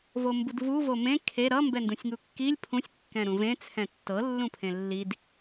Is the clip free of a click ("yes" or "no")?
yes